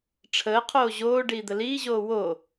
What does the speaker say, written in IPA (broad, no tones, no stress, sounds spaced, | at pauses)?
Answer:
ʈ͡ʂʰ əː qʰ oː ʑ oː ɖ iː d̪ ə l iː ʑ oː w o